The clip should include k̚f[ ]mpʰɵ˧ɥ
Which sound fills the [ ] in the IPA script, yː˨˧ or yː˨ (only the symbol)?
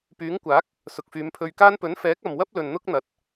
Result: yː˨˧